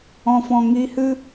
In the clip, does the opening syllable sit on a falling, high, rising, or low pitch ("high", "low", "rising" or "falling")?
low